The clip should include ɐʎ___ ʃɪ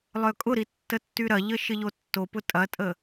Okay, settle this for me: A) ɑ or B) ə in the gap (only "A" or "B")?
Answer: B